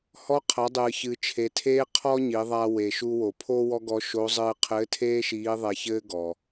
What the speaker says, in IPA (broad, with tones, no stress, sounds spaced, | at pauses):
h ɔ˧˥ qʰ ɐ˩˧ dˤ ɨː˩ ç ɨ˩ t͡ʃʰ e˩ tʰ eː˥ qʰ ɔ˥ ɲ i˩˧ ðˤ a˧ w e˩ ʃ u˧ w o˩ pʰ o˥ w ɔ˥ ɡ ɔ˧˥ ʃ o˧˥ zˤ ɨː˧ qʰ ɘː˧˥ tʰ eː˥ ʃ iː˧˥ ðˤ ɛ˧ ç ɘː˥ ɡ ɔ˩